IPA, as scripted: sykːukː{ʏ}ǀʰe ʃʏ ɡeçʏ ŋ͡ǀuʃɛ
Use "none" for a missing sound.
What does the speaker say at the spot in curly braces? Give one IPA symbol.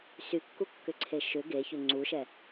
ʏ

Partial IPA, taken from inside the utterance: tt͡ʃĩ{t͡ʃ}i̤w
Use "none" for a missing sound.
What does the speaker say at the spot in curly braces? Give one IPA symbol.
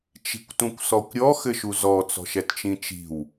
t͡ʃ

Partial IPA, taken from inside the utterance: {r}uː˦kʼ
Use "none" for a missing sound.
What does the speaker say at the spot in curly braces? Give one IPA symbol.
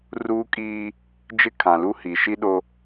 r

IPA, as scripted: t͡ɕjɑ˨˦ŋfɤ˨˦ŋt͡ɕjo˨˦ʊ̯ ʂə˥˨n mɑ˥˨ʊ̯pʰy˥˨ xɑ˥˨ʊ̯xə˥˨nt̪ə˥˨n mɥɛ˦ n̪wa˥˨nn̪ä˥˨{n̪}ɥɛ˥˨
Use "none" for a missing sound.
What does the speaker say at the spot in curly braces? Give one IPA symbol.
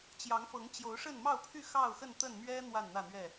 n̪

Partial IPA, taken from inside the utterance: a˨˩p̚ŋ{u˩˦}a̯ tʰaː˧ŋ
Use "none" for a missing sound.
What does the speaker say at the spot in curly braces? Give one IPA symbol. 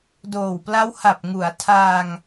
u˩˦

